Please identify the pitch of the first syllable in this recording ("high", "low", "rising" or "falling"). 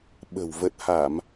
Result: low